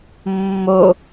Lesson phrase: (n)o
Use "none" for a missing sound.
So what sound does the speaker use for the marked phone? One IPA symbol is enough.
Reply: mː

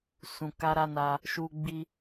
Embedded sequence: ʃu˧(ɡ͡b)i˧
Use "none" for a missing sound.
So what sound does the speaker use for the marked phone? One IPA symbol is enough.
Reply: ɡ͡b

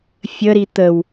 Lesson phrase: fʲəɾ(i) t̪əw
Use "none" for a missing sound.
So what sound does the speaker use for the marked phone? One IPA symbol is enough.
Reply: i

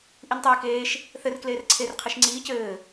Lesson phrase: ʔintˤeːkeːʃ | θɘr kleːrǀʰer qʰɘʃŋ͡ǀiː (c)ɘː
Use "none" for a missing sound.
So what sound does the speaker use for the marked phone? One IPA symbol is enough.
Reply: c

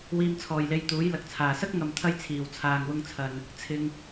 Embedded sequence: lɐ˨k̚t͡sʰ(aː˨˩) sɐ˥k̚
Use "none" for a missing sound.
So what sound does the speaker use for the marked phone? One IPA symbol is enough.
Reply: aː˨˩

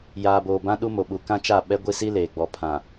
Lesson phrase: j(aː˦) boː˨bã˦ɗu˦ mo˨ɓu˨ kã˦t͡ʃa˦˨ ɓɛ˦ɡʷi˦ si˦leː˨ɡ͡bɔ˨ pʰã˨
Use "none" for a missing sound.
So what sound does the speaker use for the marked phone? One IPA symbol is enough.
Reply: aː˨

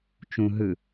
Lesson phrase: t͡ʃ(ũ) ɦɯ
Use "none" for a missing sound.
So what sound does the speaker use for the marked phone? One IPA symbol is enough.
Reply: ũ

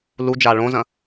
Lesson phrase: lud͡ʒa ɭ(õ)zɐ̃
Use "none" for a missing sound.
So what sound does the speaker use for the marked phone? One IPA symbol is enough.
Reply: õ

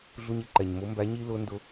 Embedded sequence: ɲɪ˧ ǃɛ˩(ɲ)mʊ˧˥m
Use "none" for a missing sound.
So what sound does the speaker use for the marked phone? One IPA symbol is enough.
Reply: ɲ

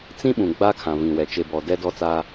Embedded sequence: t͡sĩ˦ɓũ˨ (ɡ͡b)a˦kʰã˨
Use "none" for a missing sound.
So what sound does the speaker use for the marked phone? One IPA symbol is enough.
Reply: ɡ͡b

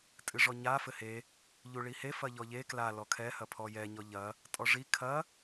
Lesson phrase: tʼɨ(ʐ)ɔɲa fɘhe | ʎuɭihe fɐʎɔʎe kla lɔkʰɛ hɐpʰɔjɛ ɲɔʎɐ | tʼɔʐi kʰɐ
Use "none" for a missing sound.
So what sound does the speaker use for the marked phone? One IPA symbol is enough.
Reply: ʐ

